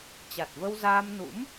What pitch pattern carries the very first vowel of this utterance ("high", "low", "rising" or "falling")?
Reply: low